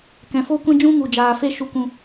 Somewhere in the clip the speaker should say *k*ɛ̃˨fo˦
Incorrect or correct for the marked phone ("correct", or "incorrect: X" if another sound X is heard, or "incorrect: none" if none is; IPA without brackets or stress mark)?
correct